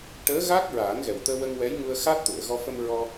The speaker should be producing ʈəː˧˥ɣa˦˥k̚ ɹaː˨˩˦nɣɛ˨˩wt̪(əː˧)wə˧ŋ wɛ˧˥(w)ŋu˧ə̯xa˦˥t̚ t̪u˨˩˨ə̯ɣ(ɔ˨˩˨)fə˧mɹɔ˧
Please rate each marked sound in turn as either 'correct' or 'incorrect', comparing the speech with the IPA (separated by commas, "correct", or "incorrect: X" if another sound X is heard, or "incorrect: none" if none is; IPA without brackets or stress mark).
correct, incorrect: j, incorrect: ɔ˧